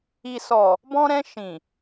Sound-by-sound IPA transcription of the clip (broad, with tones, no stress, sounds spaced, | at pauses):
i˨ s ɔ˨ | b ɔ̃˧ ɾ ɛ̃˧ ʃ ĩ˨